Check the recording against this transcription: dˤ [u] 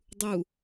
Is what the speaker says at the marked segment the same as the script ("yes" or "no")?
yes